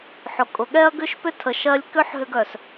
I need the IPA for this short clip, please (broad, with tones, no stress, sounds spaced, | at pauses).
ħ ʊ˨ kʼ ʊ˨ ɠ ɛ˦ ɐ̯ ɡ ʏ˦ ʃ p ʏ˦ tʰ ə˨ ʃ ɜ˧ lʲ k ʏ˦ ħ ɦ ʏ˧ ɡ œ˨ s